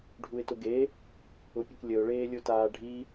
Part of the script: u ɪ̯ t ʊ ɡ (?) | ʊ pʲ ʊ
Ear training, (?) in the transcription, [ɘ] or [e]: e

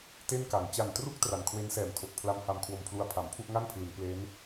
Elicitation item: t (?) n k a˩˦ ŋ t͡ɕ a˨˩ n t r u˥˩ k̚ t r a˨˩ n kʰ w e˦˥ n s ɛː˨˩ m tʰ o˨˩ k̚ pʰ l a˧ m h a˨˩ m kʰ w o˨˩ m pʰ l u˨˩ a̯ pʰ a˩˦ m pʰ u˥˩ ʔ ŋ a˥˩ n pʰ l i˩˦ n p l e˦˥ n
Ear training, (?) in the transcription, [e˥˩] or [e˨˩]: e˥˩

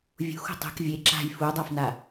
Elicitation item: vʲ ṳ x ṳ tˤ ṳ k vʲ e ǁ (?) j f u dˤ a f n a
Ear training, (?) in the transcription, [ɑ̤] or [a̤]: a̤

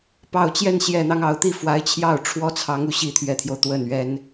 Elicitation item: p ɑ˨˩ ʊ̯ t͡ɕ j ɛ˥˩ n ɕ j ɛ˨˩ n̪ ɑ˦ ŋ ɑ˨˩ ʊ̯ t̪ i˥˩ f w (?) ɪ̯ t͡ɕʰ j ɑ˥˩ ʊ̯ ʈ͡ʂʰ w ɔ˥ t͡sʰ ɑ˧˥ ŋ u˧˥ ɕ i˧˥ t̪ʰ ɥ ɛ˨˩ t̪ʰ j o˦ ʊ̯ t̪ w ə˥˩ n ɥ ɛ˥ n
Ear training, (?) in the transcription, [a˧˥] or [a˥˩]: a˧˥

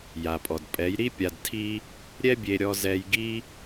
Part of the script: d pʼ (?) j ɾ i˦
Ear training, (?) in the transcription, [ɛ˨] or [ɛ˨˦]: ɛ˨˦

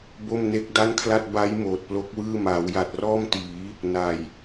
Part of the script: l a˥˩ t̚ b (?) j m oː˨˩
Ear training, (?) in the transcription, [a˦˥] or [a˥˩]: a˦˥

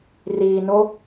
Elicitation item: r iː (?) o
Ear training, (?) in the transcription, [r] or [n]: n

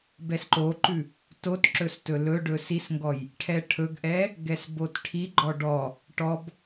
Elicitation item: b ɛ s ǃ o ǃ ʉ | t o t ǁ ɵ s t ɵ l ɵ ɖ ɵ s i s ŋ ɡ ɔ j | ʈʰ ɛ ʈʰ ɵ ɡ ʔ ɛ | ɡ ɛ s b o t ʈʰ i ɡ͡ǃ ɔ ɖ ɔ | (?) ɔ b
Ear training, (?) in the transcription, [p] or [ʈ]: ʈ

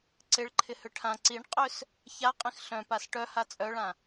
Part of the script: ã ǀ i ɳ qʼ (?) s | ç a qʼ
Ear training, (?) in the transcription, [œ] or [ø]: ø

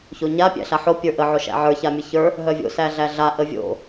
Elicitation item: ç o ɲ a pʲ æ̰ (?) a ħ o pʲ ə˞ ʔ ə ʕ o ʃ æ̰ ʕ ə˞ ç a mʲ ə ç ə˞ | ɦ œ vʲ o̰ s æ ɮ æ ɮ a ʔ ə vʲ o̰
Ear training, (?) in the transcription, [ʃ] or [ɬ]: ɬ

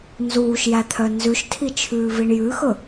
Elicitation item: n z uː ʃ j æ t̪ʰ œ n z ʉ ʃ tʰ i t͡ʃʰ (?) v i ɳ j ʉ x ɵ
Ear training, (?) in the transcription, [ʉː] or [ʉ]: ʉː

